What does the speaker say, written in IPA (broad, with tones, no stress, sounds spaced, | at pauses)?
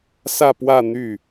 s ä˥˧ p w ä˥˧ n̪ y˥˩